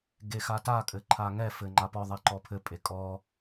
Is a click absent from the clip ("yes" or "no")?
no